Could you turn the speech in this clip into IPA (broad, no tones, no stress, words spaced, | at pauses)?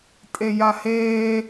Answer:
tʼejaheː